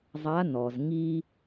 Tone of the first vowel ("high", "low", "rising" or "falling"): rising